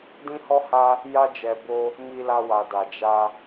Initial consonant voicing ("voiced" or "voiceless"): voiced